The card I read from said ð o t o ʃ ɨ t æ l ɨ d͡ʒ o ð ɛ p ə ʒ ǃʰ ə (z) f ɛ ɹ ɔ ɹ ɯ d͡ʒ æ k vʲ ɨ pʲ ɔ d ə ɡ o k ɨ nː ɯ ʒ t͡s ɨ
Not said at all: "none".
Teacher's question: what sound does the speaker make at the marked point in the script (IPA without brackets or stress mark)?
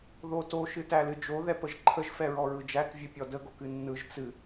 ʒ